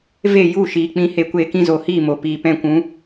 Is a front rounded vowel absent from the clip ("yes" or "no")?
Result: yes